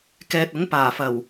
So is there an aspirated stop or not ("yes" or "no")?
no